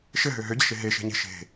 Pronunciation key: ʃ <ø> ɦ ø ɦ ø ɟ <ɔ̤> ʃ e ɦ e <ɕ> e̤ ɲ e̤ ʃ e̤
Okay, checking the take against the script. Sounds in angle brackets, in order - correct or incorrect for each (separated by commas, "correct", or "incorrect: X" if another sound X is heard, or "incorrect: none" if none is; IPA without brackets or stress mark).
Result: incorrect: ɘ, incorrect: ə̤, incorrect: ʃ